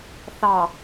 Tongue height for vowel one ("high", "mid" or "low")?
low